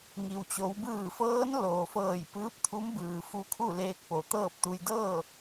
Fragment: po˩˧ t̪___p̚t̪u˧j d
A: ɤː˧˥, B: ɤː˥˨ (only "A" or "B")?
B